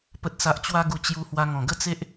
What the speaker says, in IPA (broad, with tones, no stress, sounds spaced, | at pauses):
p ə˨ t̚ s a˨ ʔ t͡ɕ w a˧ ɡ u˨˩ t͡ɕ j u˧ h w a˧ ŋ ɔ̃˨˩ ɡ ə˥˧ t͡s e˦ ʔ